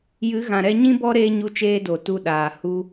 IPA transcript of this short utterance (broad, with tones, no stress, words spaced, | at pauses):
jɨ˨˦ɣã˨ɾɛ˧ ɲĩ˦bɔ˦ɾeː˧ ɲu˧t͡ʃeː˧do˨ tu˧ɗaː˨ hu˧